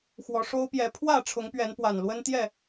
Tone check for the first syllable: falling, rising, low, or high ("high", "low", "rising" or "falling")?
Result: rising